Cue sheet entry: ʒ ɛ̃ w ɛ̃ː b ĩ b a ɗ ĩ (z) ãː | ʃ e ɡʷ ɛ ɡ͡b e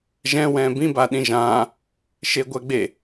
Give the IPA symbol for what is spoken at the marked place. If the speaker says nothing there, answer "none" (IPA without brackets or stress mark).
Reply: ʒ